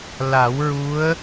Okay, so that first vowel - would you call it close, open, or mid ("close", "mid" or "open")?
open